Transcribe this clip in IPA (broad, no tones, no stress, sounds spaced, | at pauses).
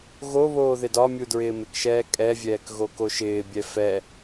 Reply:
ɣ o β oː ð ɪ d ɒ mʲ u d ɹ ɪː m ɪ k ʃ ɛː kʼ ɛ vʲ ɛː k ɣ o k o ʃ ɪː bʲ ɛ f ɛ